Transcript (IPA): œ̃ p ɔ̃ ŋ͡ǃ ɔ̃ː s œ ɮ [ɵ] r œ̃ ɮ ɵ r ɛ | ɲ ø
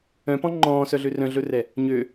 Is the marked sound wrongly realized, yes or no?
yes